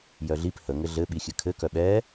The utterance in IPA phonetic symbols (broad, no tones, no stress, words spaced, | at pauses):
jœɮip hə ŋɘɮɘ ɓixʲɘkʰɘ kœɓɛ